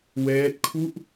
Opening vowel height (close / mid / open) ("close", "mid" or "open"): mid